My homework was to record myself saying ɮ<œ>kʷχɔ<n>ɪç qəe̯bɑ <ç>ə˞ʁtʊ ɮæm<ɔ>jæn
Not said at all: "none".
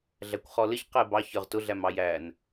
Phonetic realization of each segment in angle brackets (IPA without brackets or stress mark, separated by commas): æ, l, ç, ɑ